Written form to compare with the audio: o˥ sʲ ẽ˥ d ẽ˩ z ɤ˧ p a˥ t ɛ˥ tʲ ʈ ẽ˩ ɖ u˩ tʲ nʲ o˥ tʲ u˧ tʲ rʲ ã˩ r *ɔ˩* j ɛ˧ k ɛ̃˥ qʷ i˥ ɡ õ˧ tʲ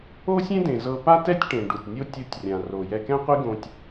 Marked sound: incorrect: o˩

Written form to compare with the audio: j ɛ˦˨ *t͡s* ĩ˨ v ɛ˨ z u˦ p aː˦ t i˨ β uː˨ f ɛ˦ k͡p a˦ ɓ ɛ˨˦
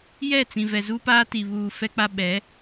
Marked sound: correct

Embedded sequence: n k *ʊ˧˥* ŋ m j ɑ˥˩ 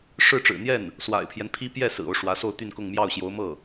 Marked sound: incorrect: ʊ˥˧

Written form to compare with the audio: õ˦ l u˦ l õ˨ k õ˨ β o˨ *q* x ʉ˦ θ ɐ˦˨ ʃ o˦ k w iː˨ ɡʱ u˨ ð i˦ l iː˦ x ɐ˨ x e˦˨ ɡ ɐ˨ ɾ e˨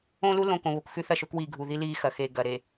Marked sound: incorrect: k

